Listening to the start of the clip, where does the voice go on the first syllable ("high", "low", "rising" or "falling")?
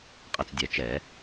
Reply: low